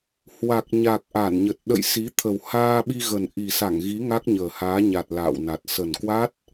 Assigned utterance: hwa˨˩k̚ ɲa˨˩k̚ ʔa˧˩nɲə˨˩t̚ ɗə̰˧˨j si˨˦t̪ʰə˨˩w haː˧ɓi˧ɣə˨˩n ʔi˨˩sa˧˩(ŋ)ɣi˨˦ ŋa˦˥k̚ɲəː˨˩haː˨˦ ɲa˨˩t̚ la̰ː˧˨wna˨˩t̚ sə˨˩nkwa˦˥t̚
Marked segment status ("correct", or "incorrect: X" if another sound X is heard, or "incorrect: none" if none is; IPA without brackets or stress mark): correct